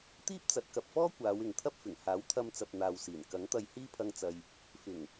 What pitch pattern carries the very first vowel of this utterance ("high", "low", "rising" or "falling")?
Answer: high